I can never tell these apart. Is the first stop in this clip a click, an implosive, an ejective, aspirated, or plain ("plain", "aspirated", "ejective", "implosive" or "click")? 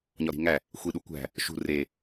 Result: implosive